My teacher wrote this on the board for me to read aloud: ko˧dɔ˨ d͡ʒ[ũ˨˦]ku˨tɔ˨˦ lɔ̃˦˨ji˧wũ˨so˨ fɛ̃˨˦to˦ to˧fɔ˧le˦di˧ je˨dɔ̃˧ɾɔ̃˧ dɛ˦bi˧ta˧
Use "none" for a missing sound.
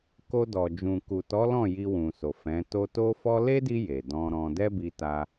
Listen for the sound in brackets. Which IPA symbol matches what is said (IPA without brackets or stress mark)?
ũ˨